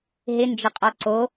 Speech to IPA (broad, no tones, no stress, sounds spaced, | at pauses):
ɦ ɪ n d͡ʒ ə qʼ ɔ ǀ o